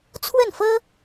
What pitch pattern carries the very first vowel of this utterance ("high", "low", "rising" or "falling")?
falling